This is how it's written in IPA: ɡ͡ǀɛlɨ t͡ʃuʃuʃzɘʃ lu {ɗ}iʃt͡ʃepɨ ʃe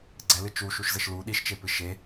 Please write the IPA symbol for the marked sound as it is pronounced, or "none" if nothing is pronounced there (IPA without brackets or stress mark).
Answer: ɗ